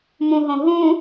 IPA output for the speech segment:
m ũ ɦ õ ɦ ũ

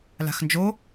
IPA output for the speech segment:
l a̤ x n d͡ʒ o

